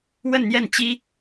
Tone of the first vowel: falling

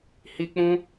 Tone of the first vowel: high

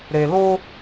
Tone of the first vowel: low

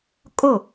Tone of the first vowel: falling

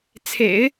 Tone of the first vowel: low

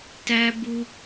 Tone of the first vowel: high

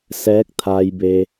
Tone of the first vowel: rising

